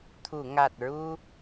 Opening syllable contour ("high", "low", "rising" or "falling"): low